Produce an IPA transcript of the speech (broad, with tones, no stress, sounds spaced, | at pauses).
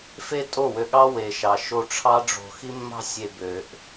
f e˦ tʼ o˦˨ w ø˧ ɠ ɑ˦ w e˨ ʃ ɑ˨ ʃ o˧ ʈ͡ʂʰ ɑ˦ ɖ͡ʐ o̤˧ x i˦ mː ɑ̤˦ sʲ e˧ b ø˨ ʔ